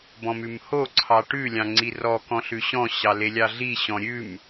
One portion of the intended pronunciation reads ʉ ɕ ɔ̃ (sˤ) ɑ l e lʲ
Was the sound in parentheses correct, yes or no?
no